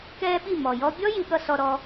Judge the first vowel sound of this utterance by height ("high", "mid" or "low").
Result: mid